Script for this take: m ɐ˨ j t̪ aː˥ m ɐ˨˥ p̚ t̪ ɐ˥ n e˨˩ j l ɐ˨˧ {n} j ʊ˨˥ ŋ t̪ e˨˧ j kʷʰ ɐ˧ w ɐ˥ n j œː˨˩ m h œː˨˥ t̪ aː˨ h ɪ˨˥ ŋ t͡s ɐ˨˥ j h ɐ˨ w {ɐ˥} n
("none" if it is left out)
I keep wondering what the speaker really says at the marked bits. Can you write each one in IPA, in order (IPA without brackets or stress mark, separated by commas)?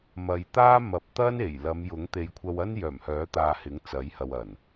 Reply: m, ɐ˨˩